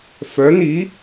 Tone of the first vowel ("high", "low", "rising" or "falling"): rising